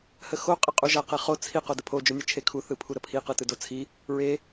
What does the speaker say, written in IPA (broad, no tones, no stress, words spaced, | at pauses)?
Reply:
həxo qʼəqʼuʒa qeχo t͡sʰi qodəpʰo d͡ʒonʲɯt͡ʃʰekʰu θɯpʰuɾəpʰi qɯtɯdot͡sʰi | ɹe